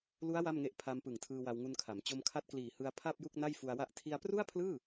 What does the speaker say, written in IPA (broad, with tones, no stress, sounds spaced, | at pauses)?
l u˦˥ a̯ w a˥˩ m ŋ e˦˥ ʔ pʰ a˧ m p ɯ˨˩ ŋ tʰ ɯː˧ w a˧ w ŋ u˧ n kʰ a˩˦ m t͡ɕ o˧ m kʰ a˦˥ t̚ k l iː˨˩ h ɯ˧ a̯ pʰ a˥˩ p̚ j u˥˩ k̚ n a˥˩ j f u˧ a̯ w a˥˩ ʔ tʰ i˧ a̯ p r u˥˩ a̯ pʰ l ɯː˥˩